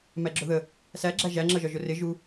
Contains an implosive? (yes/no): no